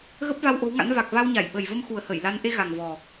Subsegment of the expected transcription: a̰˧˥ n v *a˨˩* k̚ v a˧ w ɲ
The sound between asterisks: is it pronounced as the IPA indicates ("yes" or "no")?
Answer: yes